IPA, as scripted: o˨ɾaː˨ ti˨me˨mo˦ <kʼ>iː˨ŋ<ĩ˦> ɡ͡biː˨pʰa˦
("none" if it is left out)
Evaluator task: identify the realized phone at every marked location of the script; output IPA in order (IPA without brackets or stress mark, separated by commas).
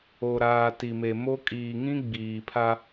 kʼ, ĩ˦